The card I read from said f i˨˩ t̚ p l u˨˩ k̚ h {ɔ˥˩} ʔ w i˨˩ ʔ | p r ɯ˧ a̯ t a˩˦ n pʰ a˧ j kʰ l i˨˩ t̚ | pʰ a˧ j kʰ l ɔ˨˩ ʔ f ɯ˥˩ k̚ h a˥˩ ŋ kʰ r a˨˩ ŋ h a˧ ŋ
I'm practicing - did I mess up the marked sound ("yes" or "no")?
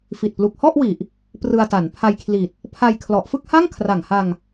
no